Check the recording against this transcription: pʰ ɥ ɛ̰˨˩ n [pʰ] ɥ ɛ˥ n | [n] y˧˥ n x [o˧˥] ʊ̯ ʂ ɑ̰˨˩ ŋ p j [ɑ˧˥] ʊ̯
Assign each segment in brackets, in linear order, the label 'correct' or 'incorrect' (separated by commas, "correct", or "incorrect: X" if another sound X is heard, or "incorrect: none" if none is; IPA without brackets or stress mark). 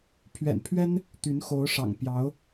correct, incorrect: t̪, correct, correct